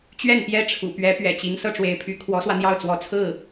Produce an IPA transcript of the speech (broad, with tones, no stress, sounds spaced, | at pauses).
t͡ɕ ɥ ɛ˥˩ n p j ɛ˥ ʈ͡ʂʰ ṵ˨˩ p ɥ ɛ˧˥ p ɥ ɛ̰˨˩ t͡ɕ i˧˥ ŋ s ɤ˥˩ ʈ͡ʂ w e˧˥ ɪ̯ pʰ y˧˥ kʰ w ɔ˧˥ s w ä˧ n̪ j ɑ˥˩ ʊ̯ t͡s w ɔ˧˥ t͡sʰ ɹ̩˥˩